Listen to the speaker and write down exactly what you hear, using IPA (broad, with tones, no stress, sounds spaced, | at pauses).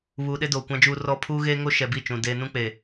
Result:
β uː˨ ɗ e˦ d oː˨ kʷ ã˦ d͡ʒ uː˦ r ɔ˦ pʰ uː˦ ɣ eː˦ ŋ o˦ ʃ ɛ˨ b i˦˨ t͡ʃ ũ˨ d eː˦ n ũ˦ k͡p e˨